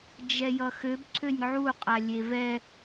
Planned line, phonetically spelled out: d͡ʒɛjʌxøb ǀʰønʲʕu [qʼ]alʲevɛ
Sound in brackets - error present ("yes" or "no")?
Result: no